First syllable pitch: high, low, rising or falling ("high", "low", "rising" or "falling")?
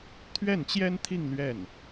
falling